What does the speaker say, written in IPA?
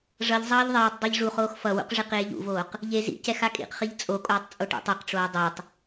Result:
ʐ ʌ ʎ zˤ ʌː ʎ ðˤ ɛː tˤ dˤ e ʎ ʐ u χ oː x f ʌ w ṵ q ʐ i q eː ʎ ṵ v oː q | ʎ e z ḭ c ɛ x a kʼ ḭ q χ i ʎ t͡sʼ o kʼ oː tˤ t͡sʼ o ʈ ḭ tˤ e q ʈ͡ʂ oː dˤ e tˤ

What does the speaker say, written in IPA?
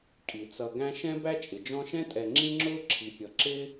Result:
kʼ i˩ t͡s ʌ˨ ɡ æ̃˦ ʃ ɛ̃˥ b æ˥ t͡ʃʼ ɪ˩ d͡ʒ ɔ̃˦ ʃ ɛ̃˥ tʼ ɛ˨ ŋ͡ǁ ĩ˦ ŋ͡ǁ ʊː˦ ǁʰ i˩ pʲ ʌ˩ ǁ ɪ˥

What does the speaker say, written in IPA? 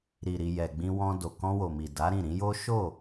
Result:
ɾ i˨ ɾ i˨ j ɛ˨ ɡ͡b ĩ˧ w ɔ̃˧ d o˨ k ɔ̃˧ w o˨ m i˨ d a˨˦ ɾ ĩ˦˨ ɾ ĩ˨˦ j o˦ ʃ o˦˨

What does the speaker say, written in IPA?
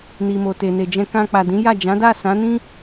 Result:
n i˨ m o˨ t e˨ n e˨ d͡ʒ ɛ̃˧ k ã˧ k͡p a˨ d ĩ˨˦ j a˦˨ d͡ʒ ã˨˦ d a˦˨ s ã˨˦ n ĩ˦

